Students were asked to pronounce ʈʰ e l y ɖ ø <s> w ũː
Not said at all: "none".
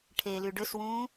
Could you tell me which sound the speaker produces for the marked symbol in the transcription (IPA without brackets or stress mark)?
s